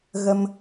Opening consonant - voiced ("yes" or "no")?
yes